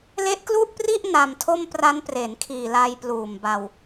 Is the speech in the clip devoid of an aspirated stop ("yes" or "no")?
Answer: no